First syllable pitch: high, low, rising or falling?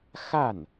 falling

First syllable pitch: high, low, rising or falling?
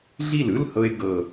falling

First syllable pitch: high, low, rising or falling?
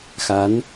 rising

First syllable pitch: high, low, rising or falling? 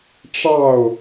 falling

